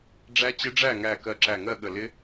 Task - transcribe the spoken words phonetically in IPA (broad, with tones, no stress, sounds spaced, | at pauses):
ɖ͡ʐ æ˦˥ t͡ɕ ɪ˦˥ ɖ͡ʐ æ˥˨ ŋ æ˧˩ k ɜ˧˩ ǁ æ˧˩ ŋ ɜ˥˨ ɠ ə˧˩ l ɪ˦˥